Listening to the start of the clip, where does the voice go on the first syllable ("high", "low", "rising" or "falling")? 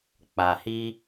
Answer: low